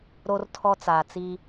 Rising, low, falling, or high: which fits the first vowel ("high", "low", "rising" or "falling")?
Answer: high